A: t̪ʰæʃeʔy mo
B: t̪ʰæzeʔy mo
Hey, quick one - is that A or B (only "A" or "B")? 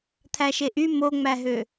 A